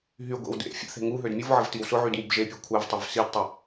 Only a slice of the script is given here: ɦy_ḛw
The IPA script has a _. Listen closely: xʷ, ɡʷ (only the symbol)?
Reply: ɡʷ